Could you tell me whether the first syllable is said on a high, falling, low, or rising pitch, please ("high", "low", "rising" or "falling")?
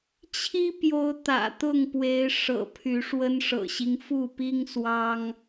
high